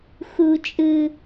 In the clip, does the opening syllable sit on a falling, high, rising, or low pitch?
high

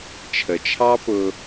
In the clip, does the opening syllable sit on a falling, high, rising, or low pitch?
low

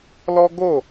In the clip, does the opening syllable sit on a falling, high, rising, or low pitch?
high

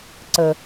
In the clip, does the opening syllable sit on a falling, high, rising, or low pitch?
low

